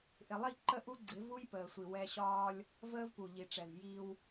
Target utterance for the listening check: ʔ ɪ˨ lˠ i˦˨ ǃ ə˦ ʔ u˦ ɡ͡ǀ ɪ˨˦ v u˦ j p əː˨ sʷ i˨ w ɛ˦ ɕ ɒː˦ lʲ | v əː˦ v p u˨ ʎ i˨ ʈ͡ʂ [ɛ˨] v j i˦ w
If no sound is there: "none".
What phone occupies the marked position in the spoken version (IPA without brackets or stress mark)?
ɛ˨